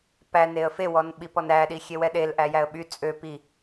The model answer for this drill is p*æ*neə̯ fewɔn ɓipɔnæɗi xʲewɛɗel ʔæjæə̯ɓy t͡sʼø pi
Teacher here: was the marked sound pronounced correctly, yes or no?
yes